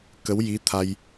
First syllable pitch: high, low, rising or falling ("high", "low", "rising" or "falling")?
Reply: rising